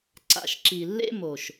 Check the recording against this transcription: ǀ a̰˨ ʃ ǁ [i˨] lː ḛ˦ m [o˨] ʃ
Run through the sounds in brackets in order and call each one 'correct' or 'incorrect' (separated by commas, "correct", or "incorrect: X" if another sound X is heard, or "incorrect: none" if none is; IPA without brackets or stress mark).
correct, correct